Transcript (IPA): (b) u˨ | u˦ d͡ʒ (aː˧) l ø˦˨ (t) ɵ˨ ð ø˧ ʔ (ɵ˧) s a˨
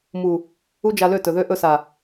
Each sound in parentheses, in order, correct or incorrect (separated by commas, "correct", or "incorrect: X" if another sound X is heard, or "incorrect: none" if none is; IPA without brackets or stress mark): incorrect: m, incorrect: a˧, correct, correct